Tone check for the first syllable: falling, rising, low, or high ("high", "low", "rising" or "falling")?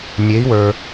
rising